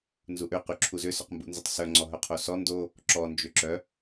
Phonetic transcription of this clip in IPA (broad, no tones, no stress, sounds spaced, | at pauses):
n z u ʔ ø q y ǁʰ u z ʏ s ʏ q m b ṵ n z ʏ tˤ s œ ŋ͡ǀ ɔ ɦ œ qʰ o s ɔ n d o | ǁ ɔ n d͡ʒ ø ǁ œ